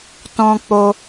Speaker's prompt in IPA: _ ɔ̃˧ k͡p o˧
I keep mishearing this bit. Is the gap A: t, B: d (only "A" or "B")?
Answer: A